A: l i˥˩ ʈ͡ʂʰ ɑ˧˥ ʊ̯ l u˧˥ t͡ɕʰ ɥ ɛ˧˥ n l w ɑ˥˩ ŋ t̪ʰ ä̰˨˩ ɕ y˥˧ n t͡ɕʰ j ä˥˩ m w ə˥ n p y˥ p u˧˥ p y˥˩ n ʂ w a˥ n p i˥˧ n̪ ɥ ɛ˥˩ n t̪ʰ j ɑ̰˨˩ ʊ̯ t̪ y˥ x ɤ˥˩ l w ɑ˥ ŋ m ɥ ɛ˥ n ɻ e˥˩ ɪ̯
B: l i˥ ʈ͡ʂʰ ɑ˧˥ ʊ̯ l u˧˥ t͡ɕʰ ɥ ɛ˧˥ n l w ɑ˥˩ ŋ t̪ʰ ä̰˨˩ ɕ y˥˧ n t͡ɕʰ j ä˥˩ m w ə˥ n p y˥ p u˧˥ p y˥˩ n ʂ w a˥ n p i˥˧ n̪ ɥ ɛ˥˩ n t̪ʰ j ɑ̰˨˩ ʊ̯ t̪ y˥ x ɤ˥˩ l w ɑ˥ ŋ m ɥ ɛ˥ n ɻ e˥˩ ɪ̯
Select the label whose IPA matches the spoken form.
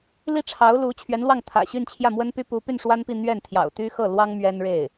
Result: B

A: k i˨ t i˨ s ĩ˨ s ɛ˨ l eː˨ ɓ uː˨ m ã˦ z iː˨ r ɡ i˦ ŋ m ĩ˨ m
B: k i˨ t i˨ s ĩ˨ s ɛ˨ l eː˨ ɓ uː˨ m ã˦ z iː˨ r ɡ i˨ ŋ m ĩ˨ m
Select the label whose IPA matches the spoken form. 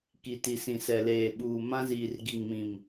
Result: B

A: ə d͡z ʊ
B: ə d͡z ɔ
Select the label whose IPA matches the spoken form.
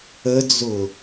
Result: A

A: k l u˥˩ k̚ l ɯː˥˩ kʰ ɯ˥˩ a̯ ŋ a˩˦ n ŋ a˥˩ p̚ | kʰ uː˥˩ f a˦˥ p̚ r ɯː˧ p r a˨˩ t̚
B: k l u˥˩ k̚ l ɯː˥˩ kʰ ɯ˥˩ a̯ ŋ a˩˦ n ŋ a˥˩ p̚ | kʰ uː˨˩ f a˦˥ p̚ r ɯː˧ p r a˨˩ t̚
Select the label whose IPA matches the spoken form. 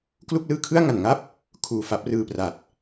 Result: B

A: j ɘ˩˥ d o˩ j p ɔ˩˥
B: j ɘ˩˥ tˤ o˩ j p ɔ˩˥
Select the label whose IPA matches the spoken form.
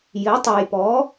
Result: B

